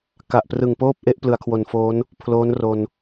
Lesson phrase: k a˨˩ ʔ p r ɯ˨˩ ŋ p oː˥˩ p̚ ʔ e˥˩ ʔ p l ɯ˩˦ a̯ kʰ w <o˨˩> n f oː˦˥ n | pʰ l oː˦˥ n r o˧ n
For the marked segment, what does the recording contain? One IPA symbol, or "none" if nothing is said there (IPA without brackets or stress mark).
o˨˩